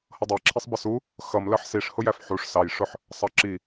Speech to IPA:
h ʌ dˤ æ ǁʰ i sˤ b ə s u | x ʌ m l ɜ ħ s i ʂ h ʊ j æ f ħ u ʂ s ɑ j ʂ ʊ ħ | sˤ ɑ ǁ i

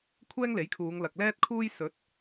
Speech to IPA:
kʷʰ ɛː˥ ŋ l e˨˥ j kʰ uː˨˧ ŋ l ɐ˨ k̚ l ɛː˥ t̚ kʰ uː˥ j s ɵ˨˥ t̚

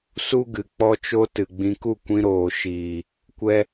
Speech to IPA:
s u˦ ɡ ɨ˨ k͡p ɔ˦ t͡ʃ o˦ t ɨ˨ ɡ͡b ĩ˧ k u˦˨ kʷ ĩ˧ ɾ oː˨ ʃ iː˨ | kʷ ɛ˧

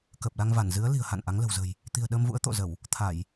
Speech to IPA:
k əː˨˩ p̚ l a˧ ŋ v a˧˩ n z ɨ˨˦ ə̯ l i̤˨˩ ə̯ h a̰˧˨ n ʔ a˨˦ ŋ l ə̤˨˩ w z ə̤ː˨˩ j | t̪ i̤˨˩ ə̯ ɗ əː˧ m v ṵ˧˥ ə̯ t̪ o̰˧˨ z ə˧˩˨ w | t̪ʰ a˧˩˨ j

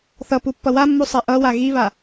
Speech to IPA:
θ ʌ p u pː ʌ w a mː u sˤ e ʔ ʌ w a ɣ i β a

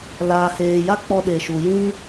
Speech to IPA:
l aː˨ h eː˨ j a˦ k͡p ɔ˧ ɗ e˨ ʃ u˨ j ĩ˦

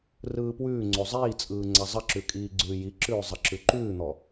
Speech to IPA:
r ɯː p w ʉː ŋ͡ǀ o zˤ iː t͡sʼ ɯː ŋ͡ǀ a zˤ ə ǁ ʉ kʼ iː ɡ͡ǀ ʉː j i ǁ ʉː zˤ ɐ ǁ ʉ ǃ ʉː n̪ ɔ

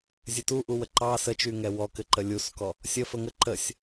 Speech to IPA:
zʲ ɘ t u ʔ u w ə ǃ ɑ s ə t͡ʃ y ŋ ɛ w ɔ k ɘ ǃ ə lʲ u s k ɔ | sʲ ə f ə ŋ ə ǃ ə sʲ

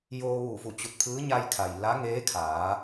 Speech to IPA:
j oː˧ ʋ uː˧˩ f u˧˩ t͡ɕ u˧˩ t̚ pʰ ɯː˧˥ ɲ a˧ j kʰ a˩ j l a˧˥ ŋ eː˧˥ kʰ aː˩˧

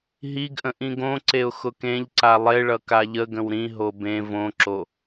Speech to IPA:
ɦ i ɡ ʔ ə̃ ʔ ĩ ɡ õ ǀ e ʊ̯ x ʊ k ẽ ʎ ǀ a lˠ e ɭ ʌ k a ʎ ə ɡ ə̃ w ɾ ĩ ɦ o b ẽ v õ ǁ o

